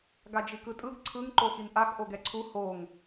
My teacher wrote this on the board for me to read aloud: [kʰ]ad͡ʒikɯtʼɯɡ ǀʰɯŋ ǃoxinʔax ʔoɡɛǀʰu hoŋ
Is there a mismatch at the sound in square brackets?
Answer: yes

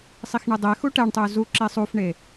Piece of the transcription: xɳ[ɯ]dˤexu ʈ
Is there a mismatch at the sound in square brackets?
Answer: no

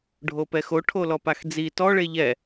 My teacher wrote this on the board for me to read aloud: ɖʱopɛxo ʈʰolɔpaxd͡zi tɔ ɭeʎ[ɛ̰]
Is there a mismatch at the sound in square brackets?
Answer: yes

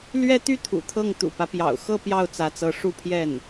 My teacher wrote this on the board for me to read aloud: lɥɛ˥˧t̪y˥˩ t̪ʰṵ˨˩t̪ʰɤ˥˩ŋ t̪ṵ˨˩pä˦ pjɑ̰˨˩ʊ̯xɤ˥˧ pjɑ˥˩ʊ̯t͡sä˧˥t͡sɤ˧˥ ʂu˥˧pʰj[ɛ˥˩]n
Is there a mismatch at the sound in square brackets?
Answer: no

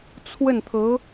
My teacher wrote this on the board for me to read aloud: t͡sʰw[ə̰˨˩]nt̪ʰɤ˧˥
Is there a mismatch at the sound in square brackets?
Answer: yes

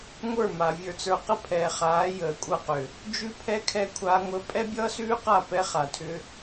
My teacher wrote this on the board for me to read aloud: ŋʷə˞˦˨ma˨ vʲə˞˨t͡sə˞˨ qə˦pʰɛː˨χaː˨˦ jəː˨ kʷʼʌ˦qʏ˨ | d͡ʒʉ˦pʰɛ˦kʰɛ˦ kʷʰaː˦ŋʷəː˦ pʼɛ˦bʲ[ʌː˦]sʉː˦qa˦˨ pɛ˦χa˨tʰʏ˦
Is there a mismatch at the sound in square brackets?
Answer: no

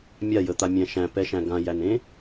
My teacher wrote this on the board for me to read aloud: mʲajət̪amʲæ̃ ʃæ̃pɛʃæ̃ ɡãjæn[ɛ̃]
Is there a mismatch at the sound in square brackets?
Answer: yes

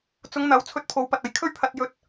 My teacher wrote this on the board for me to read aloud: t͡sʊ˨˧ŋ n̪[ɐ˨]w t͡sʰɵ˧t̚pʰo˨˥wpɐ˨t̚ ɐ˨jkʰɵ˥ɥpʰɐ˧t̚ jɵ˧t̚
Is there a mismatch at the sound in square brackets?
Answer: yes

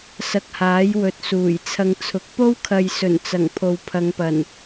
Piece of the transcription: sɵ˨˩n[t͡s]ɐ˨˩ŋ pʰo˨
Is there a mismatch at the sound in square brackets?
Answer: no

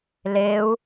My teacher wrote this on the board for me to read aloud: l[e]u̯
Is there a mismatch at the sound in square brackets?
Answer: no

